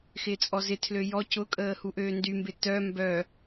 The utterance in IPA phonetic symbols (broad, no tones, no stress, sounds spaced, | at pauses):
x ɪː t͡sʼ ɔ z ɪ tʰ l ø j ɔ c ʊ kʼ əː h u ʔ øː n d y m b ɪ t œ m b œ